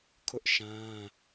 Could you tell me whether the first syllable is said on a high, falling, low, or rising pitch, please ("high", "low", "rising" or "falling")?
high